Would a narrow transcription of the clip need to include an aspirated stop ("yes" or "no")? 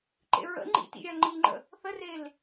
no